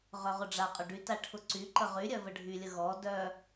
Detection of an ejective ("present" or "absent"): present